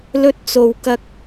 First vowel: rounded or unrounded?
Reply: rounded